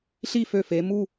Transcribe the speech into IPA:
ɬ i˥˧ f ø˧˩ f e˩˧ m u˥˧

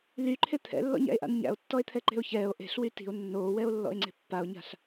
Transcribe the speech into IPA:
l y ǃʰ e t̪ʰ ɛ̰ lː ɔ̰ ɲ æ̰ e̯ ʔ a̰ n ɲ æ̰ o̯ tː ɔ e̯ t̪ʰ ɛ ǃ e̤ o̯ ç ɛː o̯ ʔ e̤ ɬ w y t i̤ o̯ nː oː w ɛ o̯ lː ɔ̰ e̯ ŋ͡ǀ e̤ pː a o̯ ɲ a̤ ɬ

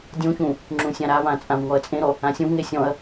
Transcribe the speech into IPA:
dʲ ũ ç ũ | ŋ͡ǁ ũ sʲ ã ɾ a v ã t͡sʼ ã v ŋ ɔ ɐ̯ t͡sʼ ẽ ɾ ɔ | ã sʲ ũ v ŋ e sʲ ɔ̃ ɐ̯

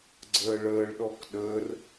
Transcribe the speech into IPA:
ɡ͡ǀ əː ɭ əː ɭ ɗ ɔ k ɗ əː r

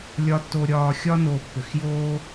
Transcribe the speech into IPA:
lʲ ɒ˨ tː o˨ ɾʲ ɒː˨ xʲ ɒ˥ n o˨ pː ʏ˩ x j oː˥

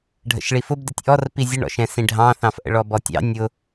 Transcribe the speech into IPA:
ɖʱ ə̰ ʃ ɭ i f ʊ b d ɪ tʲ ʔ ɔ r p i zʲ ʊ ɳ ɔ̰ ʃ ɛ̃ s ĩ ɖʱ ɑ̃ θ ɑ̃ f ʔ ə̰ ɭ ɔ b ɔ tʲ ɑ̰ nʲ ʊ

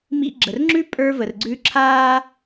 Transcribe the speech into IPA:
m ḭ˧ ɡ͡ǁ ə˨ r ŋ͡ǁ ʉ˦ pʼ ə˞˧ v ə˨ r ɡ͡ǀ ʉ˧ ǁʰ aː˦

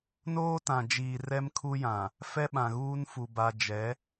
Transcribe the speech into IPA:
n oː˦ t ã˨ d͡ʒ iː˨ r ɛ˦ m kʰ u˦ j ã˨ | f ɛ˦ ɓ ã˨ ɣ uː˦ n f u˨ b a˨ d͡ʒ ɛ˨˦

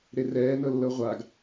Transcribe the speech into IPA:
ɾ e r ɛː n ɤ lː ɤ ʁʷ a ɡ

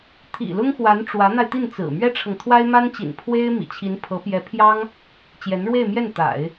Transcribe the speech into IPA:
t̪ʰ ḭ˨˩ l ʊ˥ ŋ x w a˧˥ n ʈ͡ʂ w ä˧˥ n̪ a˧ ɪ̯ t̪ i˥˩ n t͡s ɹ̩˨˩ m ɥ ɛ˥ ʈ͡ʂʰ ɤ˨ ŋ t̪ʰ w a˥ ɪ̯ m a˥ n t͡ɕ ḭ˨˩ n pʰ w e˥ ɪ̯ m ḭ˨˩ t͡ɕʰ i˧˥ n pʰ ɤ˧˥ p j ɛ˧˥ pʰ j ɑ˥ ŋ | t͡ɕ j ɛ˧˥ n ɻ w e˥˧ ɪ̯ m j ɛ˥˩ n t̪ a̰˨˩˦ ɪ̯

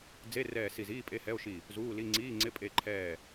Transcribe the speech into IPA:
d͡z e˧˥˧ r ɛː˦˨ s i˦˨ z iː˧˥˧ pʼ e˧˥˧ h ɛ˧˥˧ o̯ ʃ i˦˨ | z uː˧˥˧ l i˧˥˧ ŋ͡ǀ iː˧˥˧ ŋ͡ǀ ɪ˧˥˧ pʼ e˦˨ ǃʰ ɛː˦˨

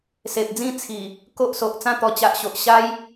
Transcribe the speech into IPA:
s e˨ p̚ d͡z ĩ˥˧ t͡sʰ i˨˩ | k o˦ ʔ s o˨ ʔ t͡s ã˥˧ t̪ ɔ˧ t͡ɕ a˨ ʔ ɕ o˨ ʔ ɕ a˦ j

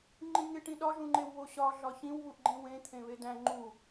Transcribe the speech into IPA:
ŋ͡ǃ ĩ ŋ e ʈ ĩ ɗ ɒ ʒ ũ ŋ͡ǃ e w β o ɕ ɒ ɮ ɒ ç ĩ w β u ʔ ɡ͡ǃ ĩ w ẽ t̪ʰ ẽ β e d æ̃ ŋ͡ǃ u

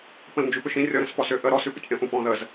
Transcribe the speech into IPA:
p ə̃ l n d͡ʒ ʉ p ʏ ʃ ĩ rʲ ɔ ɾ ə̃ s p ɔ s ʏ ʔ ə ɾ ɔ s ʉ p ə̰ tʲ ʔ ə̃ ʔ ũ p ɔ̃ ð ə z

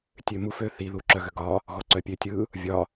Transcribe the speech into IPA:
tʲ ø m u f ø θ i ð u ǁ œ ɣ ø ɡ ɒ | ɣ ɔ ǀ œ pʲ ø tʲ ɯ | vʲ ɒ

